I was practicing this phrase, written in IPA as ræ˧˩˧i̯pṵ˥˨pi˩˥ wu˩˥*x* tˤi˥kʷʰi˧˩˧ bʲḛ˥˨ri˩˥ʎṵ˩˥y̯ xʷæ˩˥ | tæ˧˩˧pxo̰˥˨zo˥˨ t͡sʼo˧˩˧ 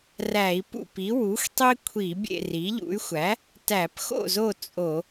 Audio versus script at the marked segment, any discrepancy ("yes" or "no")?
no